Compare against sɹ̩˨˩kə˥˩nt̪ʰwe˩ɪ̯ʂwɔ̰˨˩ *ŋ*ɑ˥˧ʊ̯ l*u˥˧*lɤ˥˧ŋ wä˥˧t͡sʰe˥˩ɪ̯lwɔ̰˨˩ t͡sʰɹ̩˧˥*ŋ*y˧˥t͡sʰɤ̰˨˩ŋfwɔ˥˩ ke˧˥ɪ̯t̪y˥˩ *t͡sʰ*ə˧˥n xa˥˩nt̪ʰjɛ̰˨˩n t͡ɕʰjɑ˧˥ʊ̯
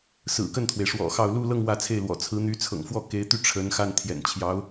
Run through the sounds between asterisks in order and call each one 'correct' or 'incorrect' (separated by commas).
incorrect, correct, incorrect, incorrect